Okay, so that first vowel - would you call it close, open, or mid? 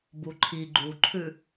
close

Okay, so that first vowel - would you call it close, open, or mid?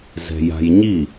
mid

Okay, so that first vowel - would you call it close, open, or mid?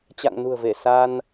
open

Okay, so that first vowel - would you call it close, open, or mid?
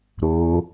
mid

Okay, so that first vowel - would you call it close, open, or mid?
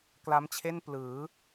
open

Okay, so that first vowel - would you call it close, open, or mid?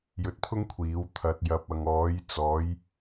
mid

